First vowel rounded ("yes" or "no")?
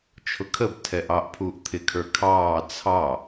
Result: yes